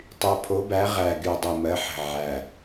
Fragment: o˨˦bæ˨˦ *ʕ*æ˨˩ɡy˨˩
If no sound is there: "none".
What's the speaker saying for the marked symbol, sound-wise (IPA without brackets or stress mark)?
ʁ